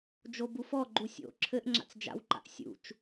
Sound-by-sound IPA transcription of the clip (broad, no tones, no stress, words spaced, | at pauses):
d͡ʒobufɔɡ͡ǃu sʲo̰ ǁʰɘʔŋ͡ǁa̰t͡s d͡ʒa̰wǃa̰ʔ sʲṵt͡ʃ